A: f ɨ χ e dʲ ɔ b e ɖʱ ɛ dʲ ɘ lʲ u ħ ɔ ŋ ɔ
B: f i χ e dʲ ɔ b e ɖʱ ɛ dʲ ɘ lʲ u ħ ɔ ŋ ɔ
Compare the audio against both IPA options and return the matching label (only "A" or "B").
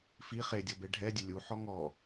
B